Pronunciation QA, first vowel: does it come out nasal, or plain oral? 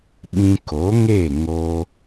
nasal